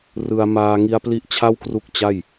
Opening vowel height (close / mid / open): close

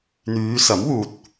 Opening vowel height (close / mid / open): close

